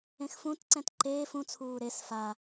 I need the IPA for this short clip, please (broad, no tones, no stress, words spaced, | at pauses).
ẽxfũtǀɛ̃t ǃeːf ũt͡sʰuː ɾes fa